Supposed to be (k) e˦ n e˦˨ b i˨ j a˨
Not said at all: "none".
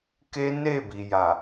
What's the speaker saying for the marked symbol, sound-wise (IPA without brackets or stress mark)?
k